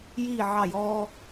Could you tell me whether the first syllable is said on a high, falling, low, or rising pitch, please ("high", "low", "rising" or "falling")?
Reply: falling